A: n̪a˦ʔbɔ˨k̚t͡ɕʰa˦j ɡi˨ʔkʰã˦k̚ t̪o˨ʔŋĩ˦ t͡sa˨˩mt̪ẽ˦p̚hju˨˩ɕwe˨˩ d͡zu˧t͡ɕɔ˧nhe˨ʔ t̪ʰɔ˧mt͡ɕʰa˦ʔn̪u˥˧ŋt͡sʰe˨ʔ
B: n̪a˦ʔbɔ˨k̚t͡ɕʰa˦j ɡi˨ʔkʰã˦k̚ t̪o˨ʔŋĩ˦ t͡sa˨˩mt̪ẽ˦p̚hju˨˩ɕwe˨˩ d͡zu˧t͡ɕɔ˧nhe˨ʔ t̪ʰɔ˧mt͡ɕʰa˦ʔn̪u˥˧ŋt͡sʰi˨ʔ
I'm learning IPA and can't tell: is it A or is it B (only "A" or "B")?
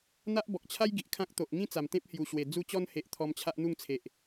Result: A